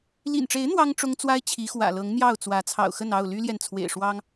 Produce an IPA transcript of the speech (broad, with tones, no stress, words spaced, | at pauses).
lḭ˨˩nʈ͡ʂe˨˦ɪ̯ n̪wɑ˦ŋ ʈ͡ʂʊ˦ŋ t͡swa˦ɪ̯t͡ɕʰi˨˦ xwä̰˨˩lɤ˨˦ŋn̪jɑ˥˨ʊ̯t͡swä˨˦ t͡sʰɑ̰˨˩ʊ̯xə˥˨nɑ˥˨ʊ̯ ly˦ljɛ˨nt͡sʰwḛ˨˩ɪ̯ ʂwɑ˦ŋ